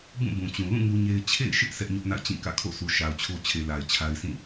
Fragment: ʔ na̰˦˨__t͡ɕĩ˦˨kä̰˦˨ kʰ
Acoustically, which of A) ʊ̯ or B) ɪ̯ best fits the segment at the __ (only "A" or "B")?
B